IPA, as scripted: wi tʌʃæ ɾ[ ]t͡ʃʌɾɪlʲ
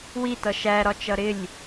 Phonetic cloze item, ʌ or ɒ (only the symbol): ɒ